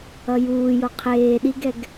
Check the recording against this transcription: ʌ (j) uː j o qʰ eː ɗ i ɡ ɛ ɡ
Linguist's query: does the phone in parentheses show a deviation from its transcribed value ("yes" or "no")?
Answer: no